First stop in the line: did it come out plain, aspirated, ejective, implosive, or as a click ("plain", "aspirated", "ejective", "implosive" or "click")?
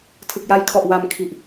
aspirated